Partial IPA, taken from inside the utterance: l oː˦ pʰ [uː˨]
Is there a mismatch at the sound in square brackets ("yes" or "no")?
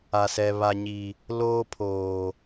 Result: yes